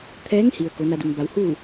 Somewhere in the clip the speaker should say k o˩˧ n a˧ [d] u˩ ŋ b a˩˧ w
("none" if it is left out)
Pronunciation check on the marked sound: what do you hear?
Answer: d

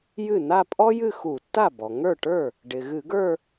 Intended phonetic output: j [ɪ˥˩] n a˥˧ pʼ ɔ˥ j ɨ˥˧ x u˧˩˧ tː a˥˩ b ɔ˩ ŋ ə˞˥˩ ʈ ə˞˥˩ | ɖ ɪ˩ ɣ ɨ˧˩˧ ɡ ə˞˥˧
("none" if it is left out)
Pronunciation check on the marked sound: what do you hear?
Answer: ɨ˥˩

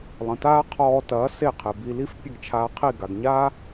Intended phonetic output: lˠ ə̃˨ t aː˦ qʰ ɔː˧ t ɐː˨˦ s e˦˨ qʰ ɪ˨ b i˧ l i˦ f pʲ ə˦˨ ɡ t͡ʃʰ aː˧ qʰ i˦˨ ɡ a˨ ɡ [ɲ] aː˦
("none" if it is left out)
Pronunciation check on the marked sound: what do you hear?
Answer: ɲ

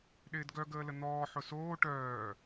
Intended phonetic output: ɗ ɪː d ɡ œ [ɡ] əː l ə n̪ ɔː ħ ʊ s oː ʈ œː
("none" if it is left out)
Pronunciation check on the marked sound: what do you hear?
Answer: ɡ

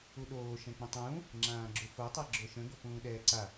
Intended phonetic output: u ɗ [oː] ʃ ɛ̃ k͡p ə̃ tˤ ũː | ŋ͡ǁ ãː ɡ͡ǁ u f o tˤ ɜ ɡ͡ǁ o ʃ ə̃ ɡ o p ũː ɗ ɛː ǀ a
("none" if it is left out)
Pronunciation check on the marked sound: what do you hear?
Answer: oː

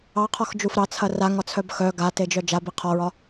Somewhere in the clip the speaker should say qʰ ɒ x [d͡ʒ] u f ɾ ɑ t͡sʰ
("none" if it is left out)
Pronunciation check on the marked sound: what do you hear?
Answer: d͡ʒ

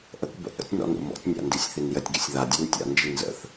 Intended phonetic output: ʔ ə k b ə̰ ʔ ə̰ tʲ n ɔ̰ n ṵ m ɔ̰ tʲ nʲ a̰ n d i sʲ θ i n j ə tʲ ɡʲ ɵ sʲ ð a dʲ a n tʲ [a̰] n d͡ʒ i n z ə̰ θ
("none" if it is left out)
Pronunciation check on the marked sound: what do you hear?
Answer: a̰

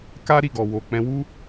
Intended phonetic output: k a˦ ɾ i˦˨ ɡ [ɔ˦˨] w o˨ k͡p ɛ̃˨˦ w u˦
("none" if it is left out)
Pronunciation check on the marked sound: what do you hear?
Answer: ɔ˨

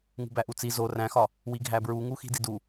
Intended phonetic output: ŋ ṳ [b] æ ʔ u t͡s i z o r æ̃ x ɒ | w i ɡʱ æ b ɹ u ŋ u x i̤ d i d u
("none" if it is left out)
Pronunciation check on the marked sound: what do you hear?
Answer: b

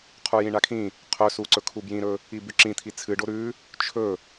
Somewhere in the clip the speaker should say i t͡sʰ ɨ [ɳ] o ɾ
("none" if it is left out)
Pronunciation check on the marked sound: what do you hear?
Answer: ɖ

